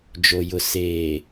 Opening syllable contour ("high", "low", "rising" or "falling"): low